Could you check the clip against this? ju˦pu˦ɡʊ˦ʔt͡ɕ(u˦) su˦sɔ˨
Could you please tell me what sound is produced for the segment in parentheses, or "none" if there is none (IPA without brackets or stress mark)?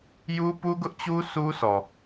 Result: u˦